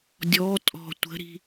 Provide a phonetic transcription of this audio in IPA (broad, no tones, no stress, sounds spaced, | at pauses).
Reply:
dʲ ɔ tʼ ɔ̤ tʷ ə̤ ɾ i̤